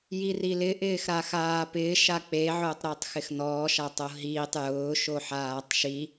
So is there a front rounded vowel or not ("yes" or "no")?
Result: no